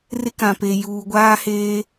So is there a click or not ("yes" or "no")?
no